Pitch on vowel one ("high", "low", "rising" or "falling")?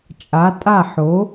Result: rising